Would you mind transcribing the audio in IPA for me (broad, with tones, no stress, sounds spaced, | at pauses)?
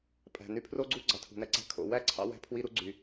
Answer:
pʼ æ̤˩ n y˧ pʰ r o˥ ɡ͡ǀ u˥ ɡ͡ǀ ɑ˩ tʰ ṳ˩ n æ˧ ǀ æ̤˧ kʰ o̰˩ w æ˥ ǀʰ ɑ̰˧ w æ̤˧ pʰ w i˧ ɾ u˧ ɡ͡ǀ y˩